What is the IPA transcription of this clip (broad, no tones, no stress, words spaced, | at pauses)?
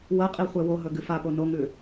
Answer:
wɐqʼi χʷewoɦɵ ɡɨfapo noŋʉ